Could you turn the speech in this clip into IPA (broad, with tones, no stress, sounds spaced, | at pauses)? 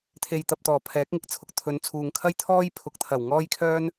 t̪ʰ e˨ j t̪ ɐ˨ p̚ t̪ ɔː˨˩ pʰ ɛː˨˥ k̚ ŋ ɪ˨ k̚ t͡sʰ ʊ˨ k̚ t̪ʰ ɵ˨˧ n t͡sʰ uː˨ ŋ kʰ ɐ˥ j t̪ʰ ɔː˥ j pʰ ʊ˨˥ k̚ t̪ʰ ɐ˨˩ w ŋ ɔː˥ j kʰ œː˥ n